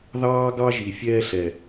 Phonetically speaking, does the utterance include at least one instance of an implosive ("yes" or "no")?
no